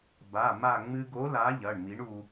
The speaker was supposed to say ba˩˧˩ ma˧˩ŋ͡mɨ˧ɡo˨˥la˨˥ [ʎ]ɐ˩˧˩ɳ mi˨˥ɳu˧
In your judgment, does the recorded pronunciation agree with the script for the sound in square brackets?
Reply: yes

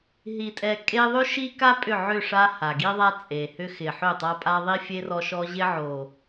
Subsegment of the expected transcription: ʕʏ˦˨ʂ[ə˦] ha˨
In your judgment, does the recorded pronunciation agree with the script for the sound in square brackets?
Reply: no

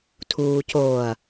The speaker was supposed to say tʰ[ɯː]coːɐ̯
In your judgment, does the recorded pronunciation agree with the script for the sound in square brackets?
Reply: no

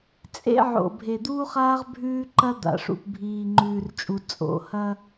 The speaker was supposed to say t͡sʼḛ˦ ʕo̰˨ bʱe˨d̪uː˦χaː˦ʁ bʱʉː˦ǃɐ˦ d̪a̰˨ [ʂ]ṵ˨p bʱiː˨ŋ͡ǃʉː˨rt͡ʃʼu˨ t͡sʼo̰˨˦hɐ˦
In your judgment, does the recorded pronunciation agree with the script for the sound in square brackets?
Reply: yes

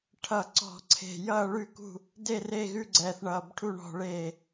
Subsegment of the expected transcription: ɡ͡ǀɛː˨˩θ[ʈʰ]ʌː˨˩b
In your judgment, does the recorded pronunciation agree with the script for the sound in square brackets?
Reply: no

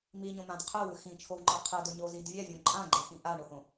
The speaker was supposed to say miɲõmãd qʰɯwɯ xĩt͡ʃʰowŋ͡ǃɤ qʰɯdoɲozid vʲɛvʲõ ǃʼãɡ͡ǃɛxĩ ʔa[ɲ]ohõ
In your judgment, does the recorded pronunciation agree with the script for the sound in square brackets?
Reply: no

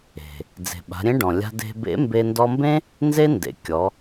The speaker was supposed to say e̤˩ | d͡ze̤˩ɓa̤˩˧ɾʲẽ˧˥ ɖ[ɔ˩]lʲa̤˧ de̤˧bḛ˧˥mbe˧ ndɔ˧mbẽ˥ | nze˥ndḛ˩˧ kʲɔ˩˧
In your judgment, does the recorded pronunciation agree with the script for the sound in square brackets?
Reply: no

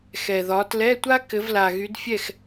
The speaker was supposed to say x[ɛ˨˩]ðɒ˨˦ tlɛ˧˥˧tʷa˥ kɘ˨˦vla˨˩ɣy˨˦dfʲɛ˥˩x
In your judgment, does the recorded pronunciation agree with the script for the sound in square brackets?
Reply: yes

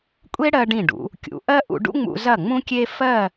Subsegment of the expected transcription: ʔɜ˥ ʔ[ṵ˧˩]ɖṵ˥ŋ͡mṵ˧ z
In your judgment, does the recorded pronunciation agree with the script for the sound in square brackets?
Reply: no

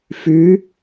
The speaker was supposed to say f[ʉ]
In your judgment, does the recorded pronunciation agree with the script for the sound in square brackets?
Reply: yes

